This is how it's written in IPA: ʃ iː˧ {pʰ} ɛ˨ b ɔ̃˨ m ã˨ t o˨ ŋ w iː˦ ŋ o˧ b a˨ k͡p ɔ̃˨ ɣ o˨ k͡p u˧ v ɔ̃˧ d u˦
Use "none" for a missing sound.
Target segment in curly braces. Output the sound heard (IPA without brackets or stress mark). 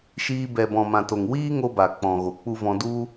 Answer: b